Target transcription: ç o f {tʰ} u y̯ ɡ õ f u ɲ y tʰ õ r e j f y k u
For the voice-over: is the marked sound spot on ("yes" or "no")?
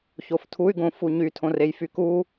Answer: yes